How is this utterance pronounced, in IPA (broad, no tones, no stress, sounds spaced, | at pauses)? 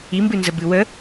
i m b ɨ n z ə b ɨ w ə